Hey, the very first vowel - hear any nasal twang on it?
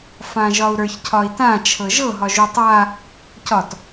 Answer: yes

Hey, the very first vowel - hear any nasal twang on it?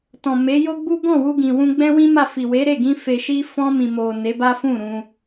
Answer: yes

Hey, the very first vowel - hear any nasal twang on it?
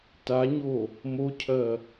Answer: no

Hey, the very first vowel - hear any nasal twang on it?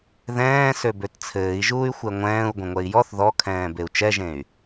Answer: yes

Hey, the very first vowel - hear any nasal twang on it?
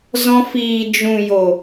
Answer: yes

